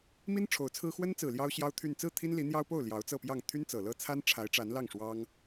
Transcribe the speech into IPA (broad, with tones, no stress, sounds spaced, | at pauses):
m i˥ n ʈ͡ʂʰ o˧˥ ʊ̯ t͡sʰ ɹ̩˥ x w ə˥ n t͡s ɹ̩˨˩ l j ɑ˥ ʊ̯ ɕ j ɑ˥ ʊ̯ t̪ʰ y˥˧ n t͡s ɹ̩˥˩ t̪ʰ i˥ n l i˧˥ n̪ j ɑ˥ ʊ̯ p o˥˩ ʊ̯ l j ɑ˧˥ ʊ̯ t͡s ɤ˥˧ p j ɑ˥˩ ŋ t̪ʰ y˥ n t͡s ɤ˨˩ l ɤ˥˩ t͡sʰ a˥ n ʈ͡ʂʰ a˧˥ ɪ̯ ʈ͡ʂ a˧˥ n l ɑ˥˩ ŋ ʂ w ɑ˥ ŋ